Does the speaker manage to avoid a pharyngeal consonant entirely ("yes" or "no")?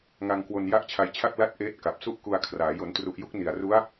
yes